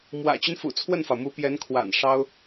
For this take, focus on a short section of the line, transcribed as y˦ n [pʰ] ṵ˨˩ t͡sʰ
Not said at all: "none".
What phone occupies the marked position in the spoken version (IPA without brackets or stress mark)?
f